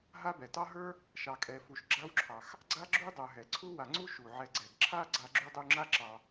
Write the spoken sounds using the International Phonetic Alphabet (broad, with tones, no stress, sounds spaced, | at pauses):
ɦ a˦ b ɛ˩ t ɑ˥ ɦ ə˞˥ | ʃ ɑ˨ kʼ ɛ˨ f u˨ ʃ ɡ͡ǁ a˦ w ǁʰ ɑ˩ x | ɡ͡ǀ a˥ ɡ͡ǁ u˥ dˤ ə˞˨ ɦ ɛ˩ ǀʰ u˥ w a˨ ŋ͡ǀ u˥ ʃ u˩ ʕ ɛ˨ ɡ͡ǀ ɛ˩ ɡ ǁʰ a˥ ɡ͡ǀ a˦ ɡ͡ǁ u˥ dˤ u˦ ŋ͡ǁ a˥ ǁ ɑ˨